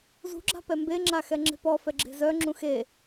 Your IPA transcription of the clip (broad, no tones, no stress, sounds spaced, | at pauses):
z ṳ ɡ͡ǁ a̤ p ɛ m b e ŋ͡ǁ a x ɛ ŋ͡ǁ e̤ p ɔ f ɛ ɡ͡ǁ e̤ z œ ŋ͡ǁ ũ x e